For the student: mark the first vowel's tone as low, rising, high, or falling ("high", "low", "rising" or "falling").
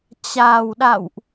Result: low